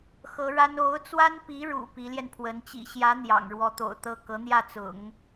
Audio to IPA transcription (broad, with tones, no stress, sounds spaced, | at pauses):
x ɤ˧˥ ɻ a˥ n o˧˥ ʊ̯ t͡s w a˥ n p i˧˥ ɻ ṵ˨˩ p i˧˥ l j ɛ˧ n pʰ w ə˧˥ n t͡ɕ ḭ˨˩ ɕ j ä˧˥ n̪ j ɑ̰˨˩ ŋ ɻ w ɔ˧˥ t̪ o̰˨˩ ʊ̯ t̪ ɤ˥˩ k ɤ˧˥ n̪ j ä˥˩ t͡s ʊ̰˨˩˦ ŋ